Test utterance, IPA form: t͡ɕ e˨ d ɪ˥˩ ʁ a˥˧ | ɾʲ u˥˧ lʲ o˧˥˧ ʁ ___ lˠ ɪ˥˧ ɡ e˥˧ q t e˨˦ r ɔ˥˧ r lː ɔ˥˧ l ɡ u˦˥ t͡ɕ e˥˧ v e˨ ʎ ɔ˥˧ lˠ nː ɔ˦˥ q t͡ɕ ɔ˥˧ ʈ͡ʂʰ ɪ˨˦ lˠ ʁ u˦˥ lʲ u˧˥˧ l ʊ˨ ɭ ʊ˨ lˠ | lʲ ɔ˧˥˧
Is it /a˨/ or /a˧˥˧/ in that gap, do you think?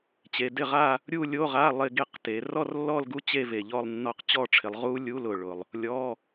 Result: a˧˥˧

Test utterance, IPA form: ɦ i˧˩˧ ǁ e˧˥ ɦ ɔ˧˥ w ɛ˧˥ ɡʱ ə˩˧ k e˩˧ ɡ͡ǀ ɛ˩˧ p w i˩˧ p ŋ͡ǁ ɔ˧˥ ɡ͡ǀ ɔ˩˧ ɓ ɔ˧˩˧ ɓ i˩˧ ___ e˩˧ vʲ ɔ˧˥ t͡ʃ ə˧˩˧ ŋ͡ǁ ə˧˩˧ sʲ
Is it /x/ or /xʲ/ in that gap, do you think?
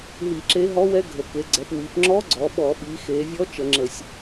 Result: x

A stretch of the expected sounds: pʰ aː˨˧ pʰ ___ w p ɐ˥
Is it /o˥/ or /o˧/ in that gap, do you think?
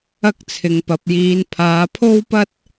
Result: o˥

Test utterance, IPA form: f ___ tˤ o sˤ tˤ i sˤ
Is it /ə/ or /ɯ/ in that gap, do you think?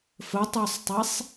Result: ə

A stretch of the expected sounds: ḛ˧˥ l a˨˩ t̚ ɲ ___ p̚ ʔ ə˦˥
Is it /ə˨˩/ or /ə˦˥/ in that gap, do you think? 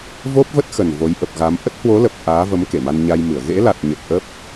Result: ə˨˩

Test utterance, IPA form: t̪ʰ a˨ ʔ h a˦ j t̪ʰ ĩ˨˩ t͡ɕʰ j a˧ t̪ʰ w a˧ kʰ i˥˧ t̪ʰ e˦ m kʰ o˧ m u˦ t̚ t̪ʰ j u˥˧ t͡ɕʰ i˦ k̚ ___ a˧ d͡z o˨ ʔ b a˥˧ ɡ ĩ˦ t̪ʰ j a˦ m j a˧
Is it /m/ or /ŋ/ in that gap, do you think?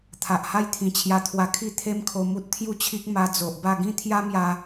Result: m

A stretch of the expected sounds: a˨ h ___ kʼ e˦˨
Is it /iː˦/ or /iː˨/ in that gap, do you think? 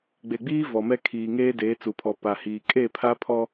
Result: iː˨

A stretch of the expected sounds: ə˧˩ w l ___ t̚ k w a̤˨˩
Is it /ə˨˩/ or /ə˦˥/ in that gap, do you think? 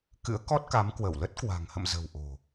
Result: ə˦˥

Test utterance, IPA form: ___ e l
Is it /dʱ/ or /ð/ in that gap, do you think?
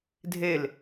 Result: dʱ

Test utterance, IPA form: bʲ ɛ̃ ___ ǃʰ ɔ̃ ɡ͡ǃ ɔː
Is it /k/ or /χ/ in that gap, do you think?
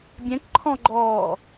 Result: k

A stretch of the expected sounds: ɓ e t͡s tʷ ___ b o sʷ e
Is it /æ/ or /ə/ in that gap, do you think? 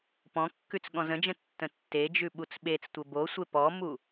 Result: ə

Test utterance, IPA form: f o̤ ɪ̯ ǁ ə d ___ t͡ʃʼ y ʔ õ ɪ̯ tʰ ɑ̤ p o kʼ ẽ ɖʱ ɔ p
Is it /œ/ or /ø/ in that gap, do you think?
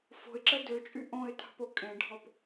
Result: ø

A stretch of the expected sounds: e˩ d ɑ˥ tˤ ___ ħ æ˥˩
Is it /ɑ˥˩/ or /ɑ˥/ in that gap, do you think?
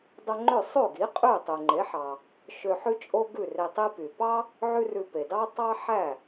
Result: ɑ˥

